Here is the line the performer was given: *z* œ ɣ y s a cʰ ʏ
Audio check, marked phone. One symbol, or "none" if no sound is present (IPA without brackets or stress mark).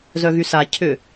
z